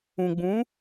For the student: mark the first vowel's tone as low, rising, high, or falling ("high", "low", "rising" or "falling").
low